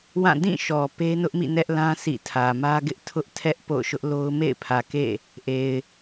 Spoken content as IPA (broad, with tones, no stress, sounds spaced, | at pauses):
w ã˦˨ d ĩ˦˨ ʃ ɔ˨ p e˦ n ʊ˦ ʔ m ḭ˦˨ n ɛ˦ ʔ l ã˦ s ḭ˦˨ tʰ ä˨ m ä˦ ɡ ɪ˦ ʔ tʰ ʊ˦ ʔ tʰ ɛ˦ ʔ p o̰˦˨ ʊ̯ ʃ ʊ˦ ʔ l o˦ ʊ̯ m ḛ˦˨ ɪ̯ pʰ ä˨ k ḛ˦˨ | ʔ e˨ ɪ̯